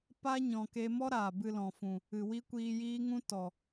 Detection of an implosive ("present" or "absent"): absent